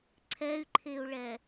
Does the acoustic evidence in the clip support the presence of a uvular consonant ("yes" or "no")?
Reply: no